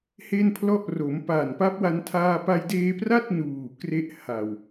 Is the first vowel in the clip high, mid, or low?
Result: mid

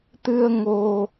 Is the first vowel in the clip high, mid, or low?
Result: high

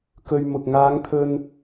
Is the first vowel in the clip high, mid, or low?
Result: mid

